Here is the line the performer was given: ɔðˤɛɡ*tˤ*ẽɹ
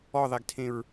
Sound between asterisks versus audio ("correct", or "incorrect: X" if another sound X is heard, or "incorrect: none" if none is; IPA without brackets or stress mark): incorrect: tʰ